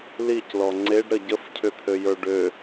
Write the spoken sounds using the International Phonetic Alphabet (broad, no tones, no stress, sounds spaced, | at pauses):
l i c l ɔ ŋ͡ǀ e ɖ ɾ ə ɟ ə f cʰ ʏ t̪ʰ ø j ə˞ ɖ ø